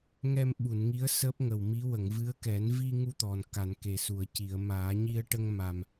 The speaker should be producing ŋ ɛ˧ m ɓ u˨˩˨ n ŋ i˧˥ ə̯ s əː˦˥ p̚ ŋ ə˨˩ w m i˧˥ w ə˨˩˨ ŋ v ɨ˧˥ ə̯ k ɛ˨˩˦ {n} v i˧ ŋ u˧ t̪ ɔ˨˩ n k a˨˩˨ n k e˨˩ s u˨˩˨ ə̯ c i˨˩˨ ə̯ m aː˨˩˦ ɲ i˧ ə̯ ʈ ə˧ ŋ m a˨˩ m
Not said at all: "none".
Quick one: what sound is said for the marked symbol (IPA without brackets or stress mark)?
n